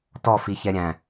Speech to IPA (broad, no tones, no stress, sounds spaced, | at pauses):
t ɔ f i ç ɛ ɾʲ æ̃